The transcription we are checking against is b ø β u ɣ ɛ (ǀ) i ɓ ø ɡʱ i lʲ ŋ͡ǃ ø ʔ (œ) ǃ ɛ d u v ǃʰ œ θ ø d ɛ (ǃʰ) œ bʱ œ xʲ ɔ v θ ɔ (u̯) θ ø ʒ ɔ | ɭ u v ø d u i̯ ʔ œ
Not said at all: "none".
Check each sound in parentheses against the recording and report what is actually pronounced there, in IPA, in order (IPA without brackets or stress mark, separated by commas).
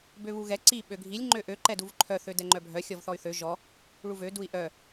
ǀ, ø, ŋ͡ǃ, y̯